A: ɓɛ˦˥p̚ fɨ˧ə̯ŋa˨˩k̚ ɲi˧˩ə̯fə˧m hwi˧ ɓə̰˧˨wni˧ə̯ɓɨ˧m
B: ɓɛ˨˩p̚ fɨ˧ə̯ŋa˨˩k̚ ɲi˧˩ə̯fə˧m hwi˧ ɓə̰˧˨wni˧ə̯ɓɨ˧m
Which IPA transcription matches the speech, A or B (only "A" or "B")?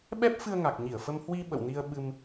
A